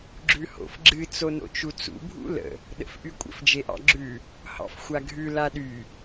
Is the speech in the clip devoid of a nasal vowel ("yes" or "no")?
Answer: yes